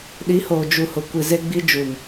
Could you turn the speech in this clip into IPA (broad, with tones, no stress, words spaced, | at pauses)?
ɗi˨˦hoː˨d͡ʒu˨hʊ˨ kʷi˨ze˦ɡ͡bi˦d͡ʒu˨m